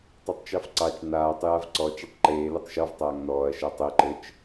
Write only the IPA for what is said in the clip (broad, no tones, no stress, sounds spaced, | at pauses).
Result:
tˤ ɘ tˤ t͡ʃ ɑ f ǀ ɑ t͡ʃ n aː tˤ j a v ǀ ɔ t͡ʃ a tˤ ǃ eː l ɛ tˤ ʃ ɔ v tˤ aː ŋ n ɔː ɐ̯ ʃ a tˤ e ǃ ɘ t͡ʃ